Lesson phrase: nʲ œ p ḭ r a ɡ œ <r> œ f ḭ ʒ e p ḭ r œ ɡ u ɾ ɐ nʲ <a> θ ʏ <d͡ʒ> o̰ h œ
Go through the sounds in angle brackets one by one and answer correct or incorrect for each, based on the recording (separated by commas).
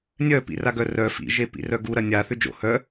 correct, correct, correct